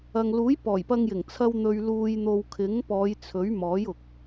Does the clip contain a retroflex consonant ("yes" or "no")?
no